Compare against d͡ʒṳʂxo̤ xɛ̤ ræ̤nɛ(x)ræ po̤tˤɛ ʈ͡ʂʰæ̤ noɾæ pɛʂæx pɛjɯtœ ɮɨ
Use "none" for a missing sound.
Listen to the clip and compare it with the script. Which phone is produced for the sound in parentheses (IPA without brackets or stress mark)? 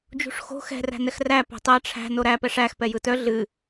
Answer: x